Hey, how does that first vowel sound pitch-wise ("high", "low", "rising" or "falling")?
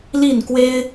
falling